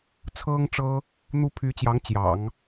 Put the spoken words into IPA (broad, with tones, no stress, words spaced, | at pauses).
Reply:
t͡sʰɤ˥ŋʈ͡ʂɤ˥ | n̪u˥ pʰy˧˥t͡ɕjɑ˧˥ŋ t͡ɕjɑ̰˨˩˦ŋ